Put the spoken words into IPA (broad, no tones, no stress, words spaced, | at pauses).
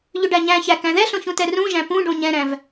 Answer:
ʎʏɖæɲæ̃çæ kæ̃ðɛɬõ çũtɛrũʒæ̃ pũ ɖõɲɛ̃ɾæ̃v